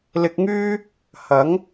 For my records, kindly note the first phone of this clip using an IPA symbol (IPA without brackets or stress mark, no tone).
l